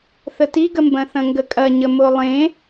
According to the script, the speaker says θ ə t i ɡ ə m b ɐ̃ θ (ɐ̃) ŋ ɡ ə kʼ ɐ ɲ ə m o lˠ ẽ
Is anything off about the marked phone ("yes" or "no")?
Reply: no